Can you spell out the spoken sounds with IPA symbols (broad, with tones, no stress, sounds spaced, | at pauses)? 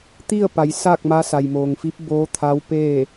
t̪ i˥˨ ə̯ p a˩˧ j s aː˥˨ k̚ m a˧˥ s a˩ j m oː˩ ŋ f i˧˥ p̚ b oː˧˥ t̪ʰ a˧˥ w p eː˥˨